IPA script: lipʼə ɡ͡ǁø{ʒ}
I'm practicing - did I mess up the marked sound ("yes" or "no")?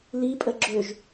no